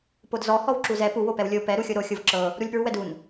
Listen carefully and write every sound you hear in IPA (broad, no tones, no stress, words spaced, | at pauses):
podzɔ hɔwǁuzɛ pu wopɛwlʲo pɛ ɾuxʲoɾo xʲovǁɤ | ɾulʲpɹuwɛdun